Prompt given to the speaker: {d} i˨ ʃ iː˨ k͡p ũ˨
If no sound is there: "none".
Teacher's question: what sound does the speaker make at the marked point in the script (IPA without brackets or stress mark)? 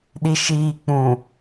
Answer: ɗ